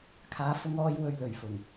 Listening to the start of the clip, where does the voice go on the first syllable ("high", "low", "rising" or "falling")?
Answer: rising